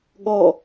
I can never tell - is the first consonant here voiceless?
no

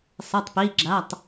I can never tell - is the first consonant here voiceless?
yes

